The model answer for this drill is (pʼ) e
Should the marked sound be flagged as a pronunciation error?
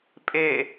no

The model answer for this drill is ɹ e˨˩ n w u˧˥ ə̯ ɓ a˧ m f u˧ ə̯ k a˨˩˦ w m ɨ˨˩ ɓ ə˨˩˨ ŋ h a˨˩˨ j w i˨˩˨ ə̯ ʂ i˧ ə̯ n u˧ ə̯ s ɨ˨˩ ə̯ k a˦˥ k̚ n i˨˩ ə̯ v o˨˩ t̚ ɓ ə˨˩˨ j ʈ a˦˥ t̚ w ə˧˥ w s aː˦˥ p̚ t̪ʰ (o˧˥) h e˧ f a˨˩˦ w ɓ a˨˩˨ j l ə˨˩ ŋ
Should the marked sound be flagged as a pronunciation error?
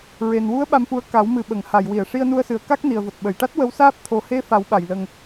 yes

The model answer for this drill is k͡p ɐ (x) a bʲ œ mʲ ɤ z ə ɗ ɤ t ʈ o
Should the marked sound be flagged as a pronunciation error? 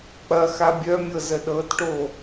no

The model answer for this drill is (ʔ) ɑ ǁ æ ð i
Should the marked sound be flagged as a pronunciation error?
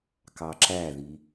yes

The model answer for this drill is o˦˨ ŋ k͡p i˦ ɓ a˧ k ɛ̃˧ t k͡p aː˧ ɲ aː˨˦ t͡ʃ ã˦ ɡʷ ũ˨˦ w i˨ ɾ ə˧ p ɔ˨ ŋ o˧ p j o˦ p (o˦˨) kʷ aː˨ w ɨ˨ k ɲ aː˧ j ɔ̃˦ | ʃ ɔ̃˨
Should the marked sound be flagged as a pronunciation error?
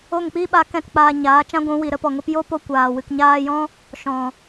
yes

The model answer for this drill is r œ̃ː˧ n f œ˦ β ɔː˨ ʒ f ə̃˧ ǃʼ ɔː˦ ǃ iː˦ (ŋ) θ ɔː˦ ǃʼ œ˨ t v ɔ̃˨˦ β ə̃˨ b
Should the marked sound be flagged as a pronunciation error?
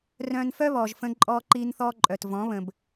yes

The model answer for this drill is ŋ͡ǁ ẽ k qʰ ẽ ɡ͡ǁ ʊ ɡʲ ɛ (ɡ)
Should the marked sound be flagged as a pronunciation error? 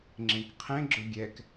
yes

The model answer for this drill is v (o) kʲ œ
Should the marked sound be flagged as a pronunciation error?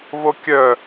no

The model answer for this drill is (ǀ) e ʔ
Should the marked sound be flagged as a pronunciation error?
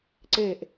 no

